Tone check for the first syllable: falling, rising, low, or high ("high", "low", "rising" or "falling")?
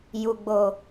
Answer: low